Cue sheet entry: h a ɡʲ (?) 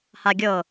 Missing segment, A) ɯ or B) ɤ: B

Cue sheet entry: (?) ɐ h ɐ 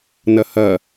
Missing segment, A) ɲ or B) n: B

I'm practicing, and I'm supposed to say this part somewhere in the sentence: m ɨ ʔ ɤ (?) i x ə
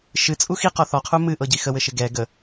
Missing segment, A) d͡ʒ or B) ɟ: B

